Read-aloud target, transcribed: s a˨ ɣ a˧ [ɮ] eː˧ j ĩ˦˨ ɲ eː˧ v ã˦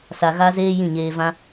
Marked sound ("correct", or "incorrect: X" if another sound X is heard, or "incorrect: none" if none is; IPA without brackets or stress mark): incorrect: z